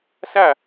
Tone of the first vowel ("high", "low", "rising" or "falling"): falling